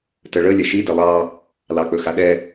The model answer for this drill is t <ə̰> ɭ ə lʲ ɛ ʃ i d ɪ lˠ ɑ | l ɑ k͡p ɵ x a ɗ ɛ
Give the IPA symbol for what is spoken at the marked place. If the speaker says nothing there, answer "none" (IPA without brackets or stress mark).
ə